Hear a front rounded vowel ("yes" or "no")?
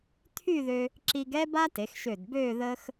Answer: yes